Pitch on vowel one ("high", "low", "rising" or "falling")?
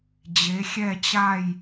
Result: rising